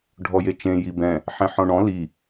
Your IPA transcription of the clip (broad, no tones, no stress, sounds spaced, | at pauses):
ɖʱ ɔ j e t͡ʃ ẽ j i b ɛ̃ | ħ ɛ̃ ħ ɔ̃ ɳ ɔ̃ l i